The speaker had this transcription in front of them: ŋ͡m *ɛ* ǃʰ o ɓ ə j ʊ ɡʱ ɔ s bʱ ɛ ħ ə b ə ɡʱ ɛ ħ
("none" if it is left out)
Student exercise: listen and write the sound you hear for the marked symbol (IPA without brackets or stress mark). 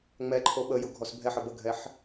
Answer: ɛ